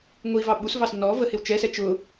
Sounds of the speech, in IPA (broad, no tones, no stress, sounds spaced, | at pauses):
ŋʷ i v ɑ ɓ u s v ɑ s n ɔ v ə h ɪ w t͡ʃ ɛ s ɛ t͡ʃ ʊ